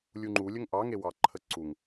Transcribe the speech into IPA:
lʲ u ŋ͡ǃ u lʲ ə ŋ ʔ ɑ ŋ e w ɑ ǃʰ ə ǀ u ŋ

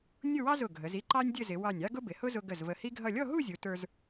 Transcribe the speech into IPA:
nʲ ʊ˥˧ w ɑ˥ z ʊ˧˩ ɡʱ ə˩˧ z i˥˧ ǃ ɑ˥ nʲ dʲ ə˥˧ z ɪ˩˧ w ɑ˧˩ nʲ ɑ˥ ɡ ʊ˥ b ɪ˩˧ h ʊ˥ z ʊ˧ ɡ ə˧˩ z v ə˧˩ h i˥ ɡʱ ʌ˥˧ lʲ ɔ˥˧ ɦ u˥˧ zʲ u˩˧ t ə˞˧ z

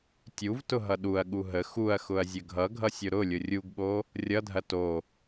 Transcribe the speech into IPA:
tʲ u v t ʊ ɦ ʌ ɗ u ɐ̯ ɠ u ɦ ə x u ɐ̯ x ʊ ɐ̯ zʲ ə ɡʱ ʌ ɡʱ ʌ sʲ ʊ ɾ ʊ lʲ ʊ rʲ u ɡ ɓ o | rʲ ʌ dʱ ɐ t o

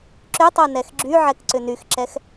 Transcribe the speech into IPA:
ǁ ʏ tˤ o n ɛ x ɡ͡ǁ y ʕ ɛ k ǀ ʏ n y x ǁ ɛ x

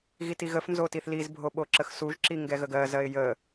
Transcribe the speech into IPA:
ɣ i t i ɣ ə f n z o t i θ l i z bʱ o ɓ o ǁ ə x s u ʒ ǁ i ŋ ɡ ɛ ɣ ə ɡ ɜ z ɜ ɪ̯ j ə

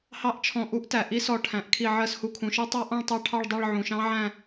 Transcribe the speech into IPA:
h ɑ˦˥ ʔ t͡ʃʰ ɔ̃˧˩ ʔ u˦˥ ʔ t æ˩ ʔ i˦˥ s ɔ˧˩ ʈʰ æ̃˩ ʔ kʰ i˧˩ ʕ ɜ˧˩ s h u˧˩ kʰ ũ˩ ʃ ʌ˦˥ tˤ ɑ˦˥ ʔ ɔ̃˥˧ ɭ tˤ ɑ˥˧ ʈʰ ɑ˥˧ ɭ dˤ ɜ˥˧ ɭ ʕ ũ˩ ʃ ɑ̃˦˥ ʕ æ̃˥˧

